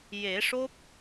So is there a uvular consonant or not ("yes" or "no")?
no